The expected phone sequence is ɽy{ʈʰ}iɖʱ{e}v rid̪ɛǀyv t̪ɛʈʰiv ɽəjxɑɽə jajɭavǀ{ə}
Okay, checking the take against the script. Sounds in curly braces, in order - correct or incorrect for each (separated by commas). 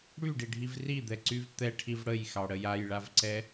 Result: incorrect, incorrect, incorrect